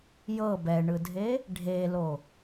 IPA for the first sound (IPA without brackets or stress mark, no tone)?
j